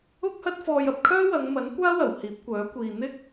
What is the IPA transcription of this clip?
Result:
ʊ˥ k̚ h ɐ˥ t̚ f ɔː˧ j ɐ˧ p̚ kʰ œː˥ w ɐ˨˧ ŋ m ɐ˨˥ n kʷ aː˥ w ɐ˨˩ w h iː˨˥ p̚ kʷ œː˨˥ kʷ iː˨ n̪ ɪ˥ k̚

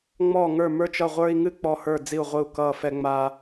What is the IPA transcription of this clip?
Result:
ŋ͡m ɔː˦˨ ŋ ə˞˦˨ m ə˞˦ t͡ʃ ʌ˦˨ ʁʷ ə˞˦ i̯ ŋ ɨ˦ k͡p ɔ˦˨ h ə˞˦˨ d͡z i˦˨ u̯ ʁʷ ɨ˦˨ u̯ k ʌː˦˨ f ɛ˦ ŋ͡m a˦

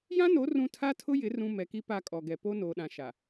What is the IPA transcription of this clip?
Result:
j ã˦ n o˨˦ r ũ˦ tʰ a˦ tʰ ʊ˦ j ɪ˨˦ r ũ˨ m ɛ˨ k i˦ p a˦˨ kʼ ɔ˨ ɡ ɛ˨ p o˦ n oː˨ ɗ ã˨ ʃ a˨

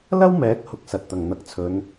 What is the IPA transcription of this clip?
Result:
l ɐ˥ w m ɛː˨˥ k̚ h ʊ˧ k̚ s ɐ˨ t̚ t̪ ɐ˨˩ ŋ n̪ ɐ˨˥ k̚ t͡sʰ ɵ˨˧ n

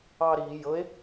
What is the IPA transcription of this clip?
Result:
ɑː ɾ iː j ɤ e̯

